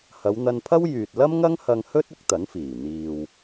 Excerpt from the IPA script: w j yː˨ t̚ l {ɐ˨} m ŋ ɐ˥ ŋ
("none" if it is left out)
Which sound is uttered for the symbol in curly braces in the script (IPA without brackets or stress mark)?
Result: ɐ˥